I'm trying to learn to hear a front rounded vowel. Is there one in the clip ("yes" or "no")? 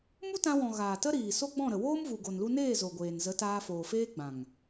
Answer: no